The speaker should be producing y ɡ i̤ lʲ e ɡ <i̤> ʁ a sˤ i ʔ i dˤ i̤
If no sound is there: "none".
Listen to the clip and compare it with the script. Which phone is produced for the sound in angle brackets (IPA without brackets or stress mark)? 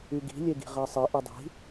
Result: i̤